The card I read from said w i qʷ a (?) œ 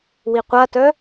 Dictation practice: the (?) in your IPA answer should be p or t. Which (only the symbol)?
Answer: t